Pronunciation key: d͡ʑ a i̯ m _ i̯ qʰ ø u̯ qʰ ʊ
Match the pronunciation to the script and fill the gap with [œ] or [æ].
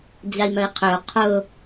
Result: œ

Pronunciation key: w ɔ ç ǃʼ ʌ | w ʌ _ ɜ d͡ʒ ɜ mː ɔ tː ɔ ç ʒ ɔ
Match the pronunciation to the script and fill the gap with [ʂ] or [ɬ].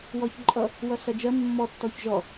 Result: ɬ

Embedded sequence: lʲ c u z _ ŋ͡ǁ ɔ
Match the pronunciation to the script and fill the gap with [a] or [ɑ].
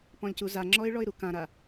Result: a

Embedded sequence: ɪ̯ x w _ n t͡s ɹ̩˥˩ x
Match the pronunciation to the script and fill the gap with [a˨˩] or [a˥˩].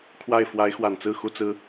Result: a˨˩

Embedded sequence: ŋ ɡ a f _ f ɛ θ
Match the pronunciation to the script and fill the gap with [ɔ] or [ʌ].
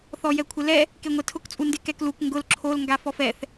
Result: ɔ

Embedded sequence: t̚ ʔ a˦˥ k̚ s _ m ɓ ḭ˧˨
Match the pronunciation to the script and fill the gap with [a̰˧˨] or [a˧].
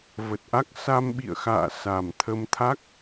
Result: a˧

